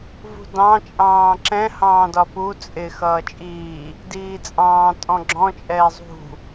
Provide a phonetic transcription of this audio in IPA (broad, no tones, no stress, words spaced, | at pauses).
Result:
vṳdɑ̃ t͡ʃʼɑ̃ːǁɛ̃ hɑ̃ːdɒpu t͡sʼɪ xʌːt͡ʃʼiː | diːt͡sʼɑ̃ː tʼɔ̃ɡ͡ǁɔ̃ t͡ʃʼɛːzˤṳ